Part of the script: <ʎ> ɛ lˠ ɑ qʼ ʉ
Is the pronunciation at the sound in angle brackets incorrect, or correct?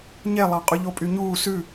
incorrect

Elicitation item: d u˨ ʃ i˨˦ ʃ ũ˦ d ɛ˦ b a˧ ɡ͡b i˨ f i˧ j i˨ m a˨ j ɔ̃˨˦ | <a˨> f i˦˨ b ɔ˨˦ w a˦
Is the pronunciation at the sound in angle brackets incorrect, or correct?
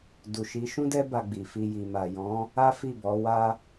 incorrect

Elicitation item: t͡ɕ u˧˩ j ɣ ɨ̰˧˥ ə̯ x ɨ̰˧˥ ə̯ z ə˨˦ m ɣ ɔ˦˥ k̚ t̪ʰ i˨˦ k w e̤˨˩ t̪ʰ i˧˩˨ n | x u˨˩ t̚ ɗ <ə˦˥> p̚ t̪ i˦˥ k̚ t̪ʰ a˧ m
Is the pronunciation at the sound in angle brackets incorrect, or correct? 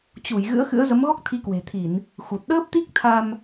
incorrect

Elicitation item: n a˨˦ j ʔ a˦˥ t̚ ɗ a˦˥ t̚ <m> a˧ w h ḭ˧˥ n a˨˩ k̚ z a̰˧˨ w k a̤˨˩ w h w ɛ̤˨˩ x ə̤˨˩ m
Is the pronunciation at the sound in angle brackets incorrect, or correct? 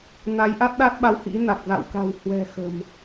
incorrect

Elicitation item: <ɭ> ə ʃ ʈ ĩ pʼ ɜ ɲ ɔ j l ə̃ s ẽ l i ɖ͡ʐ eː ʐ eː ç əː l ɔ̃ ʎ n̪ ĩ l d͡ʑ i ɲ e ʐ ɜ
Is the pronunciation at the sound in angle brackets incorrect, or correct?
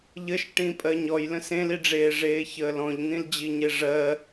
incorrect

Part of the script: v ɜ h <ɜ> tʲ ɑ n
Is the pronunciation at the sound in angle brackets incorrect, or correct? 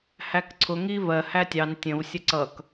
incorrect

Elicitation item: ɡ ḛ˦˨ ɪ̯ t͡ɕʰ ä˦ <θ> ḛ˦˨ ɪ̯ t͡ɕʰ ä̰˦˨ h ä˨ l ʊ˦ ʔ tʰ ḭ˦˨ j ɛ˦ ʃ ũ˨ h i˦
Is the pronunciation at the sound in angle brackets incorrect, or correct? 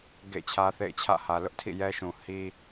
correct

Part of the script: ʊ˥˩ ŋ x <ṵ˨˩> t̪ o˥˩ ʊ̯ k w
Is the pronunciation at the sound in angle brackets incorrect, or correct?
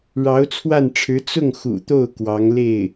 correct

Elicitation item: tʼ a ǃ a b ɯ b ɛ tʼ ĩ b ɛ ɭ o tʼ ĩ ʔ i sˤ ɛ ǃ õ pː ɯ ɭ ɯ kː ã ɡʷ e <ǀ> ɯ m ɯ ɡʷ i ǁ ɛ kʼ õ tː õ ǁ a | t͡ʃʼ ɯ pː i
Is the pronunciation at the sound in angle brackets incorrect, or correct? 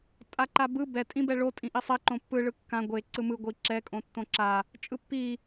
correct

